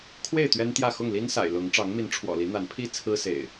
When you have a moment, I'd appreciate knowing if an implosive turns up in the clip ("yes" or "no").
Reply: no